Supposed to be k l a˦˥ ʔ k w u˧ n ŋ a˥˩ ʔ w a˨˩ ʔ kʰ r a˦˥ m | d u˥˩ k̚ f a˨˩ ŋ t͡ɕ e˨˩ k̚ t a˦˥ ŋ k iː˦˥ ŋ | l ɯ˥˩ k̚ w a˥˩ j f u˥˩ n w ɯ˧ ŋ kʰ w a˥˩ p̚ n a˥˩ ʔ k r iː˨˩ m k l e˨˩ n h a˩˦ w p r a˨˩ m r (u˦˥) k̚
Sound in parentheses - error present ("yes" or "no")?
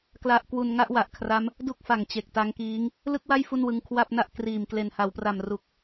yes